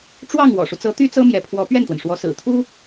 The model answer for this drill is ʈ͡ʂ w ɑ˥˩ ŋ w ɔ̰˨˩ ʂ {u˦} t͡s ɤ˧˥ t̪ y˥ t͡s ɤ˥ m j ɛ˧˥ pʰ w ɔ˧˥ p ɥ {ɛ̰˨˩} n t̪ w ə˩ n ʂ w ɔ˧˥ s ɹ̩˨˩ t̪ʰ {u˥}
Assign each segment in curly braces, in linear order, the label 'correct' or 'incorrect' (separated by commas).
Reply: correct, incorrect, correct